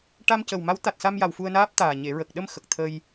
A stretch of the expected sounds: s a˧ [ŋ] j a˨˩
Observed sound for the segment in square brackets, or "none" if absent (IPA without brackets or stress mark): m